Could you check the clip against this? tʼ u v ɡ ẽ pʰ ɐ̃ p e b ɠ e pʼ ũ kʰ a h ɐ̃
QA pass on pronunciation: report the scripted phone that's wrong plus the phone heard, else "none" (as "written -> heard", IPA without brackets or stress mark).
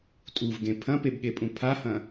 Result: kʰ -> pʰ